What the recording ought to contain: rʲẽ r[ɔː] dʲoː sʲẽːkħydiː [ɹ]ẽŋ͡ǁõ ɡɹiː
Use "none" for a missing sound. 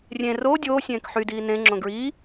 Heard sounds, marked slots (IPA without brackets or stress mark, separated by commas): oː, n